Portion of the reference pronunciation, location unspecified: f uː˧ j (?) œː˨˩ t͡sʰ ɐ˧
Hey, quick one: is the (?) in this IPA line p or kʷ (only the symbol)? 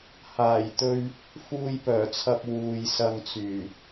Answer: p